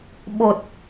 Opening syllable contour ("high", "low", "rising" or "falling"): low